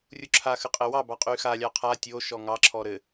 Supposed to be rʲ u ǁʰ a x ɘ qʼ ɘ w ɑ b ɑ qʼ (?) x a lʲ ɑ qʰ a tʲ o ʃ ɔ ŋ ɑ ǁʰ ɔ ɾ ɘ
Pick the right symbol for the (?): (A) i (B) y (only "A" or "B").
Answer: B